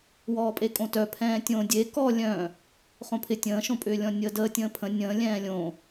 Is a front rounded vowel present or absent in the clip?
present